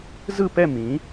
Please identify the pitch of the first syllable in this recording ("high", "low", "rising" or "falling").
falling